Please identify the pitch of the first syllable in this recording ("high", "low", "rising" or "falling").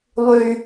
high